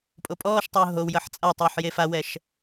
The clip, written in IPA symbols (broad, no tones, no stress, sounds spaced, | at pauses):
pʼ o pʼ ɔː ʃ tˤ ʊː ɦ o w j ʌ ħ t͡sʼ a tˤ ʊː ħ j e f a w ɛ ʃ